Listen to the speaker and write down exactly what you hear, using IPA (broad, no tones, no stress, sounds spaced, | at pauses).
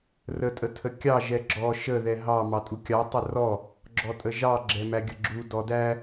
r ə tʼ ə tʰ ə kʲ ɑ ʒ ɛ ɡ͡ǁ ɔ ʃ ə ð ɛ ɦ ɑ m ɑ tʼ u kʲ ɑ tˤ ə r ɔ | ɡ͡ǁ ɔ tʼ ə ʒ ɑ ɡ͡ǁ ɛ m æ ɡʲ ə ɡ͡ǁ u d ɔ d æ